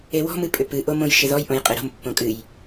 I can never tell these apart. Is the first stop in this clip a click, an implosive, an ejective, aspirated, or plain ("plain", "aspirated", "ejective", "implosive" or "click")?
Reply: ejective